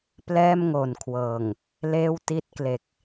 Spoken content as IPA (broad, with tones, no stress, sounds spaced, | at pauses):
p l ɛː˥˩ m ŋ o˨˩ n kʰ w ɤː˨˩ ŋ | l eː˥˩ w t i˥˩ t̚ k l e˨˩ k̚